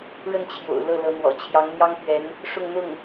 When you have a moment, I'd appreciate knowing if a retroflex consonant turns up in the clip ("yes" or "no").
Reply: yes